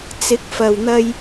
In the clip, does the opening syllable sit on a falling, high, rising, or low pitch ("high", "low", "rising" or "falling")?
rising